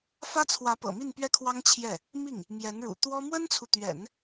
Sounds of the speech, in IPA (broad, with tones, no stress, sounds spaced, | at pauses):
f ä˥ t͡sʰ w ä˧˥ p ɤ̰˨˩ m i˥˧ n p ɥ ɛ˥˩ kʰ w ɑ˥ ŋ t͡ɕʰ j ɛ˥˩ | m i˥˩ ŋ | m j ɛ˧˥ n ɻ ṵ˨˩ t̪ w ɔ˥ m w ə˥ n t͡sʰ u˨ t̪ ɥ ɛ̰˨˩˦ n